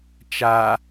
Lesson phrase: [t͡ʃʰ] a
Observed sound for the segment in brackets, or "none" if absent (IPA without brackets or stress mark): t͡ʃ